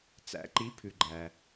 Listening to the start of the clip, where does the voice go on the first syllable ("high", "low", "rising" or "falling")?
rising